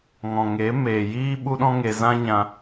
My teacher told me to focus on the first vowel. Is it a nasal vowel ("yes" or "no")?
yes